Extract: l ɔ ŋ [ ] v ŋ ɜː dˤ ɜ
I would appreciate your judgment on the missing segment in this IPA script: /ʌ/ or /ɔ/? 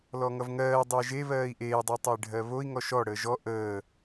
ʌ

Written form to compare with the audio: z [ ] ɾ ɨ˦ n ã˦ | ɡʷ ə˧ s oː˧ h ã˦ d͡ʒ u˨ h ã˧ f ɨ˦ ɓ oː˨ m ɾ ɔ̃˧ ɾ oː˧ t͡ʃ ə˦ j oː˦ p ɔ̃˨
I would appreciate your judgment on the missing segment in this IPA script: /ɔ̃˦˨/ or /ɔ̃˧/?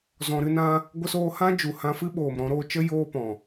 ɔ̃˧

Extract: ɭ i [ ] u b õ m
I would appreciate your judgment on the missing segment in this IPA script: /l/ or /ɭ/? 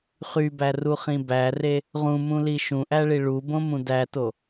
ɭ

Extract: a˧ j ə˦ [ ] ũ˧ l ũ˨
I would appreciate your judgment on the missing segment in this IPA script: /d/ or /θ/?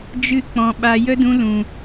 d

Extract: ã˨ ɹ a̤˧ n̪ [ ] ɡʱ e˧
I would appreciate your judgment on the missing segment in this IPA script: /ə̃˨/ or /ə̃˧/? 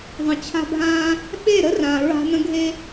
ə̃˧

